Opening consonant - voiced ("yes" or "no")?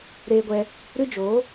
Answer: yes